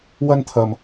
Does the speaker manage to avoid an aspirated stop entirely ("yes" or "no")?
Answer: no